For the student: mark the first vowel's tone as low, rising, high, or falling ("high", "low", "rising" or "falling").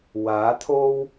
rising